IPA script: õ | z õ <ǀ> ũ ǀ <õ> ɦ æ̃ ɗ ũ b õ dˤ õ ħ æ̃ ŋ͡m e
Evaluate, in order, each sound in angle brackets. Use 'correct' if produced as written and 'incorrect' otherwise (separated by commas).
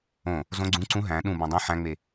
incorrect, incorrect